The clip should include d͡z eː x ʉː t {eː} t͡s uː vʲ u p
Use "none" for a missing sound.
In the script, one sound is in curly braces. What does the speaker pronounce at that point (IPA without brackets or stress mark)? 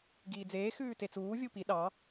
e